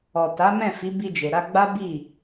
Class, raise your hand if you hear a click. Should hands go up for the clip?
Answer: no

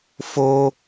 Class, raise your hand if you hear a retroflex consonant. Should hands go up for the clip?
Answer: no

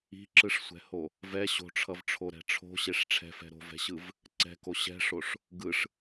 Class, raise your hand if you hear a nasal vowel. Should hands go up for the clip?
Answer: no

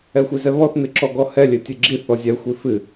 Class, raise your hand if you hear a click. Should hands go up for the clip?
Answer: yes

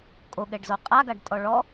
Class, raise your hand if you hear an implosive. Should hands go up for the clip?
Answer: yes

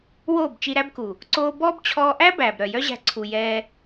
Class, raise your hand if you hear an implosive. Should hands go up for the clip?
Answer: no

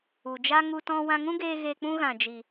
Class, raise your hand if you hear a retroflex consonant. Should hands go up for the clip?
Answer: no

